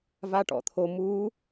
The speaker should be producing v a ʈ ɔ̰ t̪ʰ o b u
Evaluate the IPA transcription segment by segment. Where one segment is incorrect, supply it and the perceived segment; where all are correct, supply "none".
b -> m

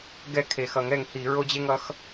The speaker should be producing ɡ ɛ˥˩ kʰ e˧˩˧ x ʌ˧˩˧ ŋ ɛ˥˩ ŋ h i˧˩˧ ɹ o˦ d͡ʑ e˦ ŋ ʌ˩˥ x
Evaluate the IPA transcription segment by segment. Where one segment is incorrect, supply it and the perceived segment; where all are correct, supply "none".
none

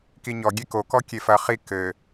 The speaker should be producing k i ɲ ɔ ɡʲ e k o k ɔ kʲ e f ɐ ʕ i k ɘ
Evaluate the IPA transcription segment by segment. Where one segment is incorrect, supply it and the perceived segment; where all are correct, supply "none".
ʕ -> χ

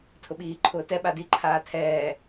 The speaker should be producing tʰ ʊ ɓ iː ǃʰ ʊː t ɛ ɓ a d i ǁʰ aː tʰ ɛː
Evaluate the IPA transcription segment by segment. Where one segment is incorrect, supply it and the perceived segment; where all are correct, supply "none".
ǁʰ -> ǃʰ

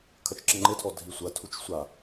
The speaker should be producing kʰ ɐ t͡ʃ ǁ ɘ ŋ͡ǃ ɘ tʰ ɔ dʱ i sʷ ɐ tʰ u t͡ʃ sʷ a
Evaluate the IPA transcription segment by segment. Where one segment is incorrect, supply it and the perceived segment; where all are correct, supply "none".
none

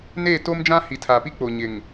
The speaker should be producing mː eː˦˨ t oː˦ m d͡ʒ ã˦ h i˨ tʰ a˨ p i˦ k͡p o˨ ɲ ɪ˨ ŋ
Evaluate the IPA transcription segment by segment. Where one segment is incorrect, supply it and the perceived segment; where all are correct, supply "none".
mː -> n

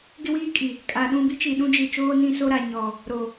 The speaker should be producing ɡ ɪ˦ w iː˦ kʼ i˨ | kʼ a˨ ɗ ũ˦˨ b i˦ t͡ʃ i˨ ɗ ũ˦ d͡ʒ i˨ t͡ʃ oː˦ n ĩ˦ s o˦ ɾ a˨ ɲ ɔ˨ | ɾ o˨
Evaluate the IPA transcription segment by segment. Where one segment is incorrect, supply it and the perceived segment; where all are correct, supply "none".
none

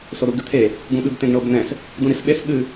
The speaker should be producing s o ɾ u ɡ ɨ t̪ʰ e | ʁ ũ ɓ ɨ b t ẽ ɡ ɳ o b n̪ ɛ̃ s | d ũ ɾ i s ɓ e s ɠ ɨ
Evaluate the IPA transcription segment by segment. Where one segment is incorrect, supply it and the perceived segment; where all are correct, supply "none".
ʁ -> ɡ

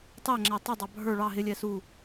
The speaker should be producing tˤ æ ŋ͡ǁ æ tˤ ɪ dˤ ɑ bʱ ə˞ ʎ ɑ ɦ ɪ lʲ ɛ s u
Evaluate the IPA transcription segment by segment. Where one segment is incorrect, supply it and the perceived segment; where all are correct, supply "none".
ʎ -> ɭ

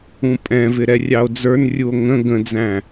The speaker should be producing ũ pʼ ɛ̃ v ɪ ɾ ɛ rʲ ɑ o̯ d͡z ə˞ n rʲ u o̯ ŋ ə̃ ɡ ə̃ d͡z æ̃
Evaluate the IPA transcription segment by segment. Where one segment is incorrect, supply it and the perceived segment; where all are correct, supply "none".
none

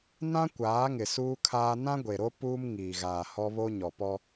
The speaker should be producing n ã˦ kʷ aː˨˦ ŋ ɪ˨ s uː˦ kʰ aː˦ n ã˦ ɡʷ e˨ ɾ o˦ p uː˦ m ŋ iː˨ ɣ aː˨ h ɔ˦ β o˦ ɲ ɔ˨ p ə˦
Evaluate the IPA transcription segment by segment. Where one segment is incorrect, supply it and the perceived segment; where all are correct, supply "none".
ə˦ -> ɔ˦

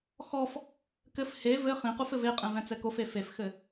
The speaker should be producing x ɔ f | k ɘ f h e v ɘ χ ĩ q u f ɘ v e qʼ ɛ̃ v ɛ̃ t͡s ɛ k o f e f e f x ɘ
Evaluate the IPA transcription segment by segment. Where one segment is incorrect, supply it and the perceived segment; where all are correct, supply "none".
none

